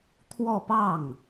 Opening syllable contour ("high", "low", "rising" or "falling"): falling